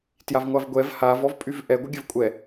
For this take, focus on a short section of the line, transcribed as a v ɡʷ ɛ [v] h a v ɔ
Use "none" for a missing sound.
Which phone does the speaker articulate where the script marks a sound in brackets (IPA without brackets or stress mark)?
v